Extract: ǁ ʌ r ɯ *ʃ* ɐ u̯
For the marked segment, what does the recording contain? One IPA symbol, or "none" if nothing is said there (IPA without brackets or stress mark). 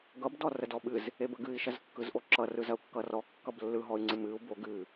z